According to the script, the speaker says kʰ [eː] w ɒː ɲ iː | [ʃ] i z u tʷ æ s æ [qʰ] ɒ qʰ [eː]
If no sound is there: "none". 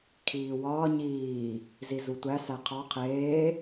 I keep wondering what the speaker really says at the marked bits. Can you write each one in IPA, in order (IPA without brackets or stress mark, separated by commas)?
iː, z, qʰ, eː